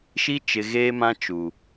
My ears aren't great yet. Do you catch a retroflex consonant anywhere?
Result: no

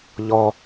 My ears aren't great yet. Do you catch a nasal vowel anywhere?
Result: no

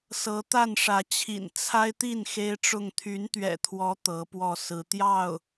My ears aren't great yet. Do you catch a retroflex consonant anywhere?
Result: yes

